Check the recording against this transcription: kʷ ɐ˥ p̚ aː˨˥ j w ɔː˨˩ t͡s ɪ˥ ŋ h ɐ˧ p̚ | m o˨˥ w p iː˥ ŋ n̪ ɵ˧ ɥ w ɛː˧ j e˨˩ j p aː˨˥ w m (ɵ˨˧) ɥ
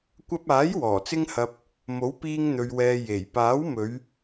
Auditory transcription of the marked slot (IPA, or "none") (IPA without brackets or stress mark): ɵ˨˧